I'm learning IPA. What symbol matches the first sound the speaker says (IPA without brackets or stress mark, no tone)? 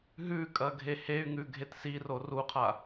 ɦ